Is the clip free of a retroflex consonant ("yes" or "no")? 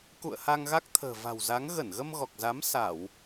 yes